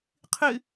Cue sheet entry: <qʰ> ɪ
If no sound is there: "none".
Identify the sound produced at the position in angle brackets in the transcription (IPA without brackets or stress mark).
qʰ